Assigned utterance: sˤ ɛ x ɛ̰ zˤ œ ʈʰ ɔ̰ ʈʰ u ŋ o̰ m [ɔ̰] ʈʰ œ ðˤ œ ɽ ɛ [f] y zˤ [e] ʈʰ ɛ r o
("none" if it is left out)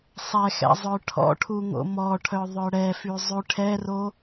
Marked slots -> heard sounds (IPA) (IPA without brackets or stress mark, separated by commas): ɔ, f, y